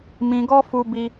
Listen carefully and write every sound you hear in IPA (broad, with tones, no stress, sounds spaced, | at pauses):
m ĩ˧ ɡ ɔ˦ f u˦ b i˦